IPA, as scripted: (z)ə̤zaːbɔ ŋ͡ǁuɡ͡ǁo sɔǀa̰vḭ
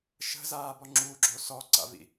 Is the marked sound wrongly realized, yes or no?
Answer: yes